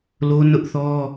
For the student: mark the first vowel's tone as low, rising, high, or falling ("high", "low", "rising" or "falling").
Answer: high